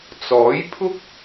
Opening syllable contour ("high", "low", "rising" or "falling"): rising